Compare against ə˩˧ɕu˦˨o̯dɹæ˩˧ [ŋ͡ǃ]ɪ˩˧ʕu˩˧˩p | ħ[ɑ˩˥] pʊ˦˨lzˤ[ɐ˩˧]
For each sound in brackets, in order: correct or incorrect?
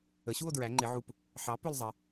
correct, correct, incorrect

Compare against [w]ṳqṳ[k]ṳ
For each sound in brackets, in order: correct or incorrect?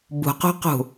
incorrect, incorrect

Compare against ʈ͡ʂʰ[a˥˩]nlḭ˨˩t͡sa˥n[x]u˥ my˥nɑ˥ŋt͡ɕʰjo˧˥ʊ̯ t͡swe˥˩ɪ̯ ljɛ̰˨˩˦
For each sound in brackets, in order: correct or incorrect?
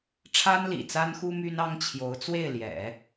incorrect, correct

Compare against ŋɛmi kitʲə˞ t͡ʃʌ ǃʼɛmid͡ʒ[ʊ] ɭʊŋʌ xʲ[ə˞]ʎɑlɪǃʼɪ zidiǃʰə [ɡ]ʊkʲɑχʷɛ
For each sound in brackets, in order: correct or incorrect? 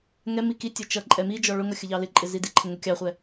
incorrect, incorrect, incorrect

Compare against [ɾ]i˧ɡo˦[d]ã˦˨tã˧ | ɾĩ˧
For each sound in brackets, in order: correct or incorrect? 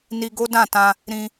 incorrect, correct

